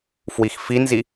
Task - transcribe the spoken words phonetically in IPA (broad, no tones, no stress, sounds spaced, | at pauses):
f w i x f i n z i